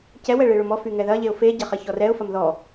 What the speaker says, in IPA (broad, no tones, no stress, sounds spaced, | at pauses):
c ɛ w ɛ ɭ e ɭ ʊ m ɔ f y ŋ ɛ ð ɐ ʎ e ʊ̯ f e ɟ ɐ χ ɐ ç ɔ r ɛ ʊ̯ f ɐ m ð ɔ